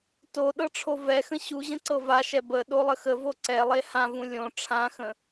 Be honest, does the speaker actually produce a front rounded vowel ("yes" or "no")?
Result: no